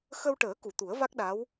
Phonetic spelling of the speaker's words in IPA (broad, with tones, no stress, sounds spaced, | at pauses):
x ə˧ w ʈ əː˨˩˦ k u˨˩˨ t̪ u˨˩˦ ə̯ v a˦˥ k̚ ɗ a˧˥ w